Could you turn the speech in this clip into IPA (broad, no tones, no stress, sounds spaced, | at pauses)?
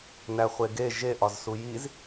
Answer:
n æ χʷ e ɡ e ʒ e ʔ ɒ z s u j i z